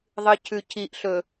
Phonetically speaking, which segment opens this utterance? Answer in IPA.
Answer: ðˤ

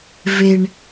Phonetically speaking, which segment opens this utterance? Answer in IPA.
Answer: v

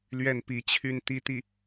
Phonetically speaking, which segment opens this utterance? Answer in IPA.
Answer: l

